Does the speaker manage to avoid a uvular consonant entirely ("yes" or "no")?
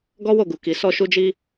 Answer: yes